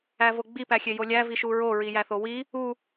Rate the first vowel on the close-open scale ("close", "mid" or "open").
open